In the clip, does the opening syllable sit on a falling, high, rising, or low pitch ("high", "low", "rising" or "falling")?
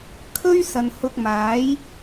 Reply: high